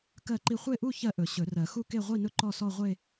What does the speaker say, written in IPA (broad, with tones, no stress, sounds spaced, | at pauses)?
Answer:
k ɜ˥˧ ǃ i˥˧ χʷ e˥˧ ʔ u˥˧ ç ɜ˥˧ ʔ ɵ˨˩˦ ɕ ɵ˨˩˦ r ɜ˨˩˦ x u˥˧ k e˥˧ ʁʷ i˥˧ n ɵ˥˧ ǃ ɔ˥˧ s ɔ˥˧ ʁʷ e˥˧